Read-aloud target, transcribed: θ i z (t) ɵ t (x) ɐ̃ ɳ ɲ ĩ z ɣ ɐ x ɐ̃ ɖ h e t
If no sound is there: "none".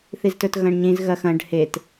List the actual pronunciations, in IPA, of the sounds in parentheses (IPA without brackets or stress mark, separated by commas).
t, ɣ